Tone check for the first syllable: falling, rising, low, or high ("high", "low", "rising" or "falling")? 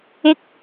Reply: high